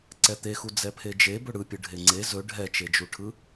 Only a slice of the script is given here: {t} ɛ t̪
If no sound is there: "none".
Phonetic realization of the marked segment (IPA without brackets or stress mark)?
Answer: ǀ